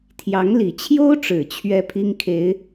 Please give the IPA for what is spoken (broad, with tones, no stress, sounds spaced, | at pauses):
t̪ʰ j ɑ˨˦ ŋ l i˨˩ t͡ɕʰ j o˦ ʊ̯ ʈ͡ʂ ɻ̩˨˩ t͡ɕʰ ɥ ɛ˦ pʰ i˦ ŋ kʰ e˨˦ ɪ̯